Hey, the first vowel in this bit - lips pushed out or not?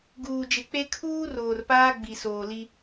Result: yes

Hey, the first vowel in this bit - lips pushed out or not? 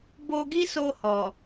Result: yes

